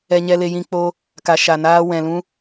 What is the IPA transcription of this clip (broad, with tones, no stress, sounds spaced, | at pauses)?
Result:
ɛ˧ ɲ ɛ˧ l e˧ j ĩ˧ k͡p o˧ | k a˨ ʃ a˨ n aː˧ w ɛ̃˨ l ũ˧